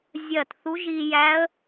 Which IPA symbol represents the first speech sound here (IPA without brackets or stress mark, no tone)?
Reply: zʲ